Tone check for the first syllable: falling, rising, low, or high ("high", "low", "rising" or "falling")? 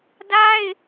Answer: high